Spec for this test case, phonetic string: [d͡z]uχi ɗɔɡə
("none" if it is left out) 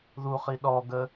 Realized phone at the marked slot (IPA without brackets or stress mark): ð